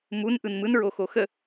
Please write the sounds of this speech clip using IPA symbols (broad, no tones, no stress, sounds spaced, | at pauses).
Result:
m u n ʔ ɯ n m ɯ n ɹ o x o x ə